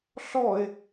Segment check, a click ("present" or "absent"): absent